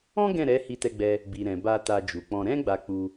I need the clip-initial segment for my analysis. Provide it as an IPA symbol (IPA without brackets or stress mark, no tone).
ɔ̃